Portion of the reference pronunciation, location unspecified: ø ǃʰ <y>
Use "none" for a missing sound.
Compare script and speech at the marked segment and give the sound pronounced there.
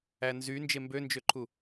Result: u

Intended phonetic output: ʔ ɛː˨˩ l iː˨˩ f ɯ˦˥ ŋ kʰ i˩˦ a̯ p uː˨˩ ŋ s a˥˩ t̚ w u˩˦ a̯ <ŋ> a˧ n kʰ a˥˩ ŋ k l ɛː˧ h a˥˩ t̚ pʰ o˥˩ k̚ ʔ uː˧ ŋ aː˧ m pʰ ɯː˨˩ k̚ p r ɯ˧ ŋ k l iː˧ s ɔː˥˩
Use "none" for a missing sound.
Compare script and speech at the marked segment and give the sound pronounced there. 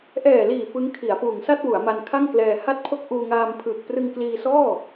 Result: m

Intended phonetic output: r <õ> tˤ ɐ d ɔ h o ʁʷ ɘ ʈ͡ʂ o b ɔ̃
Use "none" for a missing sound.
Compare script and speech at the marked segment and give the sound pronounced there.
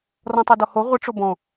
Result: ɔ̃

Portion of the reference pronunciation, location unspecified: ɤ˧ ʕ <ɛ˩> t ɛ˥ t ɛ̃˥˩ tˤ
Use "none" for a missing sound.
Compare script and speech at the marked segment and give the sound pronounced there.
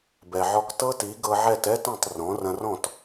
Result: ɛ˥˩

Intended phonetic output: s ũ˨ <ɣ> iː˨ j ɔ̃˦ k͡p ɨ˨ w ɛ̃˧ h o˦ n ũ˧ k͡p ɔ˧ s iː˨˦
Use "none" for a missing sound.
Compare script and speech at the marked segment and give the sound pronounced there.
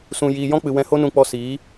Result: j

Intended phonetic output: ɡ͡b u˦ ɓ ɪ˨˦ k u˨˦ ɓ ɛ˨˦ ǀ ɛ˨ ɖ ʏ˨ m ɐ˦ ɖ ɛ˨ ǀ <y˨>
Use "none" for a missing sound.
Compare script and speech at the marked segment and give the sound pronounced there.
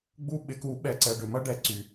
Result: y˨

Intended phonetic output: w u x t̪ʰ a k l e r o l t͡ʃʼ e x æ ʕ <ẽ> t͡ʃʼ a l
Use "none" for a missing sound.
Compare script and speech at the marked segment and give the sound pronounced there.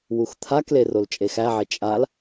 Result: e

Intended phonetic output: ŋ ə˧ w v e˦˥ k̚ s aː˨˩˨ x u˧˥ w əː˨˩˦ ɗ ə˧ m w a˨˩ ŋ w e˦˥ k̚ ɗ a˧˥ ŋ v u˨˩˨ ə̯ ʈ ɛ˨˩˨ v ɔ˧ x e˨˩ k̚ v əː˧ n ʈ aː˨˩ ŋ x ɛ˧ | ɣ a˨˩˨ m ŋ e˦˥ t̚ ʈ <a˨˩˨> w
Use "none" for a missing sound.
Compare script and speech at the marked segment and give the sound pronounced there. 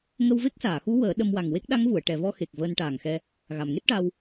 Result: a˧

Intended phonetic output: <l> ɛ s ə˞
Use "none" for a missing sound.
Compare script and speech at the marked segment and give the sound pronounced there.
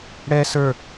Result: ɽ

